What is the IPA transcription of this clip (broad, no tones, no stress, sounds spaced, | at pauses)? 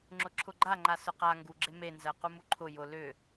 ŋ͡ǁ ʊ ǁʰ ʊ ɡ͡ǃ a ŋ͡ǃ a s ʊ q a ŋ ɡ u ɡ͡ǁ e m e n z ɜ q u m u ǃʰ ʊ j ʊ l ʏ